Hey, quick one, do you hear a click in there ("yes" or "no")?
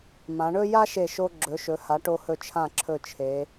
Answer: yes